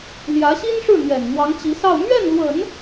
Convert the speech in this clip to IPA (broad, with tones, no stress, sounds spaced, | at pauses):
l j ä˧˥ ɕ i˥ n ʂ ɻ̩˥˩ n̪ ɥ ɛ˨˩ n n̪ w ɑ˧˥ ŋ t͡ɕ i˧˥ s ɑ˥˧ ʊ̯ m ɥ ɛ˥˩ n l w ə˨˩˦ n